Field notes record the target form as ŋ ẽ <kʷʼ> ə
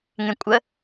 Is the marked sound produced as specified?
yes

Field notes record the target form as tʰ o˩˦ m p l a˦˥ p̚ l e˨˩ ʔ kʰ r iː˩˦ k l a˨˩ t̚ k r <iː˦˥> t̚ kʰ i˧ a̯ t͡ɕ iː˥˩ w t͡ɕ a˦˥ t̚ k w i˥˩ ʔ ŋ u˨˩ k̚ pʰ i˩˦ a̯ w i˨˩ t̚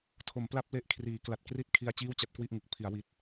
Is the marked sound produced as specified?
yes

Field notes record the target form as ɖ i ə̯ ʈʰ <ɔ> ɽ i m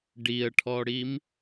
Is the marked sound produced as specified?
yes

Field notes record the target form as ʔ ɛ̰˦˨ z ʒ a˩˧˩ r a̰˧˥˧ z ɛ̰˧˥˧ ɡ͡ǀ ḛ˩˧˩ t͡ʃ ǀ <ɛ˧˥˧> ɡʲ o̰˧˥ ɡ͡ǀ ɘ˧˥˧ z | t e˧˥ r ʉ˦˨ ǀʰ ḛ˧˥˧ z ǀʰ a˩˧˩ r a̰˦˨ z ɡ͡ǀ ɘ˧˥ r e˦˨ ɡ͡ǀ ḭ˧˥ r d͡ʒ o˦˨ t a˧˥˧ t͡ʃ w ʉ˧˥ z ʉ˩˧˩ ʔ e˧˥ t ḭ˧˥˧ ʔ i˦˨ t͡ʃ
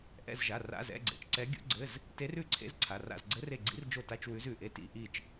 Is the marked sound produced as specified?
no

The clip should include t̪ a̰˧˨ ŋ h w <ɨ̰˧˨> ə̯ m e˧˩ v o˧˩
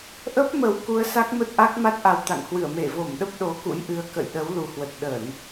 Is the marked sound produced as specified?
no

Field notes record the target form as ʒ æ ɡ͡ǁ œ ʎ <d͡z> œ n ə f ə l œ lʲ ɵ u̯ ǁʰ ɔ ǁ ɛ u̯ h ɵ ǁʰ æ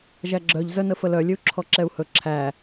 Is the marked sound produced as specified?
no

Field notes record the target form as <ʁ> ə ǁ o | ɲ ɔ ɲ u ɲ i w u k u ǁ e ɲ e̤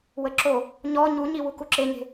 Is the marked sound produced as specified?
no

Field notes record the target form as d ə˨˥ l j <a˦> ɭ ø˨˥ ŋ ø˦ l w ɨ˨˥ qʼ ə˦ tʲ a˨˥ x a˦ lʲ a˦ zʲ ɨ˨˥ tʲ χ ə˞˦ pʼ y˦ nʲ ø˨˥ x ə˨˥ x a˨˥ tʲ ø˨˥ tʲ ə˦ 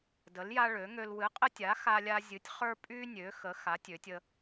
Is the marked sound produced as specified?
yes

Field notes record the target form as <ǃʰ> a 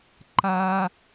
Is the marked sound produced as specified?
no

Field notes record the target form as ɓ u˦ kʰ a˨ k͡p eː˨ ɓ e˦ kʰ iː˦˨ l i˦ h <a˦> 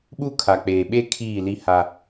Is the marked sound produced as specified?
yes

